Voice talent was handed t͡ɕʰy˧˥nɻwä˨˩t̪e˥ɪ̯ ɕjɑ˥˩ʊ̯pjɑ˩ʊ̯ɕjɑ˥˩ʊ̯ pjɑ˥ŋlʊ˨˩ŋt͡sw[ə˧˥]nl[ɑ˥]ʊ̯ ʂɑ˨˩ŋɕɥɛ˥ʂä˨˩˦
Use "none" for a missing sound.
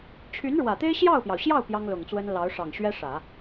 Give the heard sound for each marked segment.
ə˥, ɑ˧˥

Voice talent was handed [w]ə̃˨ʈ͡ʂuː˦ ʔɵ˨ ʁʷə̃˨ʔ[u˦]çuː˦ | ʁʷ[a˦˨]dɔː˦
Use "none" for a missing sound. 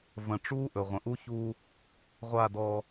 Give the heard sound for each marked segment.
v, u˦, a˦˨

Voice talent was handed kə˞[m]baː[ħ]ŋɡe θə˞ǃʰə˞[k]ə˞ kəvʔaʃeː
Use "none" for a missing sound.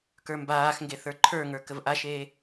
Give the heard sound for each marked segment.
m, x, ŋ

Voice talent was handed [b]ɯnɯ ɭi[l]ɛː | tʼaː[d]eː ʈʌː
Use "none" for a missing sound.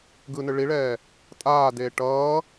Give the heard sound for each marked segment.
ɡ, ɭ, d

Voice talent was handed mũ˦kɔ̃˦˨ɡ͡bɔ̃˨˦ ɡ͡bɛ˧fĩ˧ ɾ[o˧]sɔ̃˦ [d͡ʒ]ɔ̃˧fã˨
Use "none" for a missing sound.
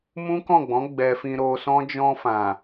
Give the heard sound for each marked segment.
o˧, d͡ʒ

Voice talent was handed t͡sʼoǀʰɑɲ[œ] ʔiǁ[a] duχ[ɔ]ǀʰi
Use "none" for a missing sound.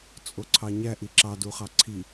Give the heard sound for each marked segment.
æ, ɑ, ɑ

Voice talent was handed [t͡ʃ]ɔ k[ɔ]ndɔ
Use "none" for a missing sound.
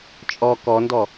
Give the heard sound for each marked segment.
t͡ʃʼ, ɔ

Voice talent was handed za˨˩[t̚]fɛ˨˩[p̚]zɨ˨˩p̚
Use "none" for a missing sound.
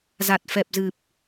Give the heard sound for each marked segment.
t̚, p̚

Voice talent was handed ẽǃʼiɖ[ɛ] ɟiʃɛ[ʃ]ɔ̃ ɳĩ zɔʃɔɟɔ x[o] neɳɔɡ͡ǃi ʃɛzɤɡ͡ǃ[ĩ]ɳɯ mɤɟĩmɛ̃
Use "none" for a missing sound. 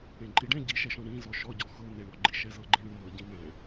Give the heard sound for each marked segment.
ɛ̃, ʃ, ɤ, ĩ

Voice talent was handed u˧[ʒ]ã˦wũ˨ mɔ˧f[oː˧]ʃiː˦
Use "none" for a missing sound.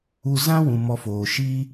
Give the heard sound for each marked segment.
z, oː˨

